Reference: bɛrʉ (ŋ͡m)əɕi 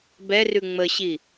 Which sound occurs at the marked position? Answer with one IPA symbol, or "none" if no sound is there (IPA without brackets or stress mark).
ŋ͡m